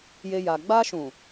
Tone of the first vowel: high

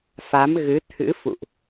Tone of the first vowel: rising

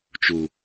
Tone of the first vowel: low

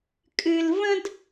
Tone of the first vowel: high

